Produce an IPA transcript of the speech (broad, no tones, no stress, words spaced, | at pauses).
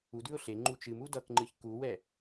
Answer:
udʉʊ̯ ɬe ŋ͡ǃut͡ʃɨmu dʌkŋ͡ǃɨç kuwɛ